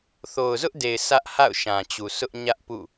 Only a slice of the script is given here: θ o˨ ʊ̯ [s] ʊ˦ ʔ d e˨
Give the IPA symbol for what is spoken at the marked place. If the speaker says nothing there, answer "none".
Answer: z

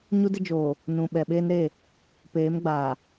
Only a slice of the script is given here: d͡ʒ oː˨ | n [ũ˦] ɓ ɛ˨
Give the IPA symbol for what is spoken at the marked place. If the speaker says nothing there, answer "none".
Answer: ũ˨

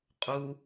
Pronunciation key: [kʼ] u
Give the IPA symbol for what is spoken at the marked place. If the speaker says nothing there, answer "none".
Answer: qʼ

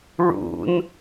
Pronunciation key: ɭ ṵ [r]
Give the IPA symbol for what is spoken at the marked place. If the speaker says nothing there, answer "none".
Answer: n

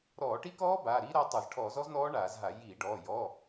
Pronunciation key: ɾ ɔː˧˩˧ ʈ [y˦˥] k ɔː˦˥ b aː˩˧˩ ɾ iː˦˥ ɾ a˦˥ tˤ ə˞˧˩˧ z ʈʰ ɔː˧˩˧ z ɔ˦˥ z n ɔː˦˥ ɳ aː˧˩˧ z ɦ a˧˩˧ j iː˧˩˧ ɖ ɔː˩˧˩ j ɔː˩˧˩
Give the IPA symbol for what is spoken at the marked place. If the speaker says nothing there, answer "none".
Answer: i˦˥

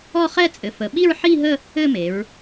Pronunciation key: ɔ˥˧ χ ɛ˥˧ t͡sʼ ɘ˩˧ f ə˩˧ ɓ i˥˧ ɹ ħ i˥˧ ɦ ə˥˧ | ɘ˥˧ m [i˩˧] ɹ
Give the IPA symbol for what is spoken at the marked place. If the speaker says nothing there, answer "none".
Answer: e˩˧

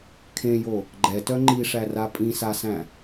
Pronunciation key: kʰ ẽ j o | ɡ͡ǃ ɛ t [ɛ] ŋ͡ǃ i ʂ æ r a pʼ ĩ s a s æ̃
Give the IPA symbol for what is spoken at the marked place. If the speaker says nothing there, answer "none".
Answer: œ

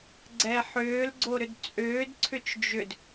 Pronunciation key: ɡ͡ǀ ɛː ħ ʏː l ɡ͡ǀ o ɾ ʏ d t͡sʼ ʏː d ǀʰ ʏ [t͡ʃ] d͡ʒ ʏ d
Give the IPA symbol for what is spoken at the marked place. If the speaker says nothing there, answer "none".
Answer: t͡ʃ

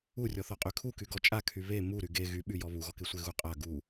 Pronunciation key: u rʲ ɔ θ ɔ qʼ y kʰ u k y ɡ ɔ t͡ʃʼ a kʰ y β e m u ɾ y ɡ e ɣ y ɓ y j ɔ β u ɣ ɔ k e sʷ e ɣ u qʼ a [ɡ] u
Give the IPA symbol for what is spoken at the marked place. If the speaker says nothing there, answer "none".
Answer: ɡ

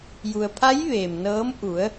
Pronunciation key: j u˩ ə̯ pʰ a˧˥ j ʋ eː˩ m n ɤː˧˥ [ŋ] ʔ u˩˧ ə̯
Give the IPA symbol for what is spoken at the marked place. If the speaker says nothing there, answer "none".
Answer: m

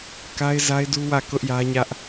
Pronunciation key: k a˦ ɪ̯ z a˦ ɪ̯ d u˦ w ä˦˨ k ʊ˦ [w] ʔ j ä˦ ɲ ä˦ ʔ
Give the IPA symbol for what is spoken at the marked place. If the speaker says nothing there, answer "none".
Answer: none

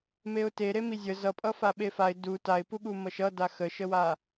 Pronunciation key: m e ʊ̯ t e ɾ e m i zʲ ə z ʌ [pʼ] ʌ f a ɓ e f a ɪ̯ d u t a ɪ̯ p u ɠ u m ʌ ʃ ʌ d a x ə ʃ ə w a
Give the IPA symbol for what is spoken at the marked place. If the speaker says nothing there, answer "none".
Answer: pʼ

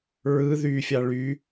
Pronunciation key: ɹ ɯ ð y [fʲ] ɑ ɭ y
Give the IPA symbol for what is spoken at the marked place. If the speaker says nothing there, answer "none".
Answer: fʲ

